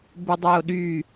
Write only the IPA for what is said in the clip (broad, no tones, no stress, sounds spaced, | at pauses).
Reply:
b ə dˤ œ o̯ ɗ y